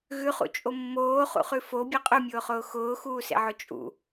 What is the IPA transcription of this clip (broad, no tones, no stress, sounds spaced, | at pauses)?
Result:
ɣ ʉ χ ṵ t͡ʃʼ o mː oː χ ṵ χ ʉ f o bʲ e qʼ ʉ mʲ ʊː χ ʊː x ʊː x uː s ḛ ʕ ʊ t͡ʃʼ ṵ